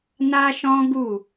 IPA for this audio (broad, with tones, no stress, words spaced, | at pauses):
na˦ʃɔ̃˦ ɡu˦˨